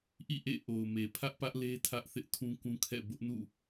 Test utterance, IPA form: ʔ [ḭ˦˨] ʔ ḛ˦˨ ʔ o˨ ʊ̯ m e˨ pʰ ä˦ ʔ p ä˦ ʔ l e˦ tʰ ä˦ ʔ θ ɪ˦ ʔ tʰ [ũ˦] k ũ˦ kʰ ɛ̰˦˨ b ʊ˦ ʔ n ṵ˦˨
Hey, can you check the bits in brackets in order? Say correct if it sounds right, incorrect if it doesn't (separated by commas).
correct, correct